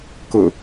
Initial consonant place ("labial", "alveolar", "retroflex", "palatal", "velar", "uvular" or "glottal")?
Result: velar